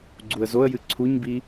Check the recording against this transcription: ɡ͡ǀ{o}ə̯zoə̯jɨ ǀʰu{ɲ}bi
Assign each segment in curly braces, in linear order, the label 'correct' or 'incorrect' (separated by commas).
incorrect, correct